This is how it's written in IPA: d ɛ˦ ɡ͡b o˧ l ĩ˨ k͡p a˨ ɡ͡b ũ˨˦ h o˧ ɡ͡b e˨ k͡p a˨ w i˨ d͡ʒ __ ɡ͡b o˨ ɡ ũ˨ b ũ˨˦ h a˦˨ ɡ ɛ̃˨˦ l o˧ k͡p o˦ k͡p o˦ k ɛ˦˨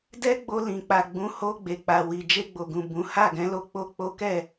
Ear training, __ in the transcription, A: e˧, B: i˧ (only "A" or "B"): A